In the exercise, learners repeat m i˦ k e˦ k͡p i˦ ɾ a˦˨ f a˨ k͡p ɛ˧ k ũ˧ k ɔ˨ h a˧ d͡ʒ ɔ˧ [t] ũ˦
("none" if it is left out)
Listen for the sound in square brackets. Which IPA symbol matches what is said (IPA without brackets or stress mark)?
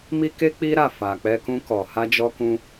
k